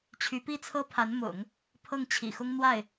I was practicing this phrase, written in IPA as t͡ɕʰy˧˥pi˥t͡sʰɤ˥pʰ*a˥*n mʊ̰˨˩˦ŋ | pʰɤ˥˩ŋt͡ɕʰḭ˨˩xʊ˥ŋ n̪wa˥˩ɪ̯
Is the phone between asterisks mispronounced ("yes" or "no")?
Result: yes